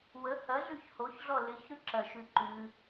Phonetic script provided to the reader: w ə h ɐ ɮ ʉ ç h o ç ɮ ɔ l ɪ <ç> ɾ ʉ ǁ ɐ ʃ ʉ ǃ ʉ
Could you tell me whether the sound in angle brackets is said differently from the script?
no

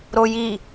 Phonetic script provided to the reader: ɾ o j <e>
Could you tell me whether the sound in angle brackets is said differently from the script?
yes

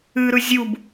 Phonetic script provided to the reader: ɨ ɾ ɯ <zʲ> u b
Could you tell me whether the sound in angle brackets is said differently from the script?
no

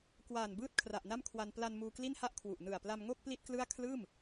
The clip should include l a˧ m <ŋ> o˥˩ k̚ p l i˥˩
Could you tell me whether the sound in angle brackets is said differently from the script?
no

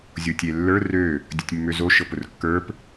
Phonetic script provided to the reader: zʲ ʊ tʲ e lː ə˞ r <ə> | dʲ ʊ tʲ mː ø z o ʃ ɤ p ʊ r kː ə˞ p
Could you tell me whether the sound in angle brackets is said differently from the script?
yes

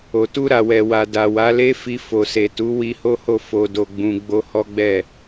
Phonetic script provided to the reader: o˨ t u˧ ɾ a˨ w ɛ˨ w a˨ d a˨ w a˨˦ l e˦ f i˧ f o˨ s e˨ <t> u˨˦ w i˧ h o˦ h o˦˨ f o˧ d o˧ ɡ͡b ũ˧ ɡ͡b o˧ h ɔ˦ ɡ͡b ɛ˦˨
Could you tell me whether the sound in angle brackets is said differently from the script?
no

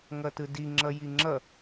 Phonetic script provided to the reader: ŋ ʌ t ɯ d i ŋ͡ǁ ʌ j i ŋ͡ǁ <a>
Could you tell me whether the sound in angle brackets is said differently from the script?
yes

